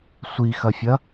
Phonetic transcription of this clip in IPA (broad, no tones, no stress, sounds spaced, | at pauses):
sʷ i x ɐ fʲ ɐ